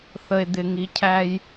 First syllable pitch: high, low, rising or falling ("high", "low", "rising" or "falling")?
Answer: low